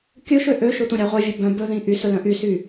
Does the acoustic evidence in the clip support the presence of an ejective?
no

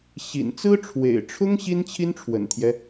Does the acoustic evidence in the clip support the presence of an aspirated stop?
yes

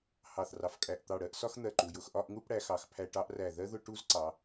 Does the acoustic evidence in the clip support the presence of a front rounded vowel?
no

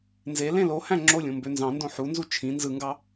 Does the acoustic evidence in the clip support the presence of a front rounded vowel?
yes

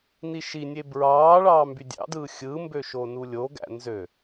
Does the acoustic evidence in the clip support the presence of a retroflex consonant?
yes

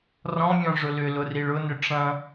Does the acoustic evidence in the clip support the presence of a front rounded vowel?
yes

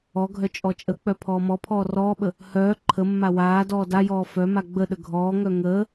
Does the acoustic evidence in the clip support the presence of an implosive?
yes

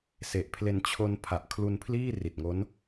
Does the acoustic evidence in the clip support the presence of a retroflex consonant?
no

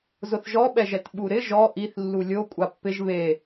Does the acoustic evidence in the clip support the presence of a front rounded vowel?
no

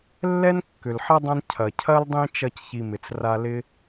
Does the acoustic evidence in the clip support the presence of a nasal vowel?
yes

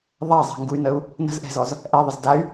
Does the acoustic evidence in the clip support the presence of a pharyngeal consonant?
no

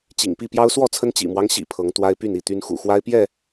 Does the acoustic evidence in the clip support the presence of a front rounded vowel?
yes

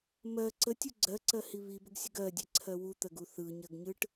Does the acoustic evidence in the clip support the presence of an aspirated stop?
yes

